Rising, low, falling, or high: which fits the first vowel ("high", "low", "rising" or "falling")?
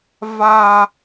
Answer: high